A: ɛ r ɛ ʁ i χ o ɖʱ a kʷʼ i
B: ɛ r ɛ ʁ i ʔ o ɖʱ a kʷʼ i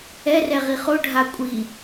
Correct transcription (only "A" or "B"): A